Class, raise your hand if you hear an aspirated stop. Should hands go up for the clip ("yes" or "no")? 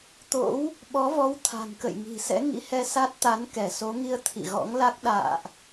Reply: yes